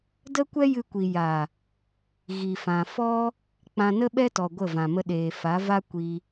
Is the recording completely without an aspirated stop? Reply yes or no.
yes